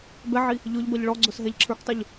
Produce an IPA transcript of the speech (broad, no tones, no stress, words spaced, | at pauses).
bɛʕi | ʎʊʎ bʌʎɭɔɡ͡ǀʊs ɦɛʎǁʰə˞ktˤuʎ